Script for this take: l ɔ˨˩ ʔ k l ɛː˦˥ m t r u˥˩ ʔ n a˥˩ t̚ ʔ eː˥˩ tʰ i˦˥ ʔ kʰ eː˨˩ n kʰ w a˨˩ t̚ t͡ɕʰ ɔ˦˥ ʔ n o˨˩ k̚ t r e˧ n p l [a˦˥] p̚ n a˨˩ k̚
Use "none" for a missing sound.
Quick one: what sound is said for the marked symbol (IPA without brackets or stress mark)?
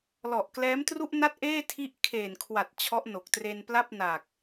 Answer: a˥˩